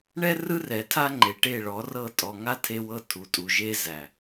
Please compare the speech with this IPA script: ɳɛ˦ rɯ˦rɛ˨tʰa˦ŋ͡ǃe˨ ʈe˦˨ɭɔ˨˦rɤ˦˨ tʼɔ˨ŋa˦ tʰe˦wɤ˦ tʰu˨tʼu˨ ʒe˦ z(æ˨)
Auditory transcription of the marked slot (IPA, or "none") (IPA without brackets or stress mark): æ˨